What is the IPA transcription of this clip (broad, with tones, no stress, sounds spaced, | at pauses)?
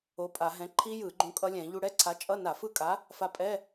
o˨˥ pʼ a˧˩˧ ɦ ɛ̃˨˥ ǃʰ i˦˥ j ɯ˧˩˧ ɡ͡ǃ ũ˧ kʼ ʌ˦˥ lʲ ɛ̃˧˩˧ ʎ u˧ ɽ ɛ˧˥˧ ǀʰ a˨˥ t͡ʃʼ ʌ˧˥˧ n a˧˩˧ f ɯ˦˥ kʼ a˨˥ | f a˧ pʼ ɛ˧˥˧